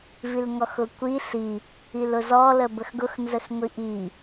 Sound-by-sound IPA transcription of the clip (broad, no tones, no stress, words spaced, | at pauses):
vilŋɔxʊkʷi ɬi | ilʊzɔ ləbəxɡʊx nzəxŋʷiʔi